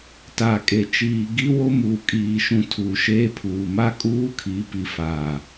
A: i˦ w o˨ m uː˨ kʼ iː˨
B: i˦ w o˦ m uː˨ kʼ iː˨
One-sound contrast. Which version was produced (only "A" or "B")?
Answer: B